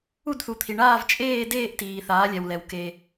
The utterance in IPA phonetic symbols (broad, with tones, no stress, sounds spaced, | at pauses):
u˥˩ d θ u˩˧ t̪ʰ i˩ ɳ aː˥˩ v t͡ʃʼ eː˥˩ d eː˥˩ ʔ t iː˩ θ aː˩˧ lʲ ɛ˩ w l ɛ˩ w k e˩